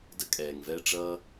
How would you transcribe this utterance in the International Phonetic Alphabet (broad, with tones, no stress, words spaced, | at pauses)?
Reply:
də˥kʼɛː˩ŋvɛ˥ʈ͡ʂʌː˥